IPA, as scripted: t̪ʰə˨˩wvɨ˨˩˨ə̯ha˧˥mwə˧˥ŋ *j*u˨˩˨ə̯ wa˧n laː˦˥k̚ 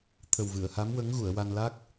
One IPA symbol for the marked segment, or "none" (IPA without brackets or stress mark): ɣ